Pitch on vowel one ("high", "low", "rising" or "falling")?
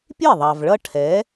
falling